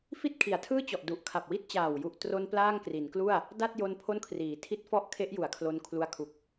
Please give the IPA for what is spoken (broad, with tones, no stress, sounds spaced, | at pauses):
f i˥˩ t̚ kʰ i˩˦ a̯ tʰ ɯː˥˩ t͡ɕ ɔ˨˩ ʔ d u˨˩ ʔ kʰ a˨˩ p̚ w i˦˥ t̚ t͡ɕ aː˨˩ w j u˨˩ ʔ t r o˧ n p l aː˥˩ ŋ k r i˩˦ n k l u˥˩ a̯ | d a˥˩ t̚ j o˧ n pʰ o˥˩ n kʰ r iː˩˦ tʰ i˥˩ t̚ f ɔ˥˩ ʔ kʰ e˦˥ ʔ j u˨˩ a̯ kʰ l o˧ n kʰ l u˧ a̯ kʰ u˨˩ k̚